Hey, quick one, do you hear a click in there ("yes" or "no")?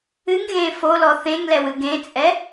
no